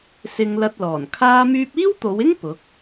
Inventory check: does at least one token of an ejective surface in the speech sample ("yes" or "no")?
no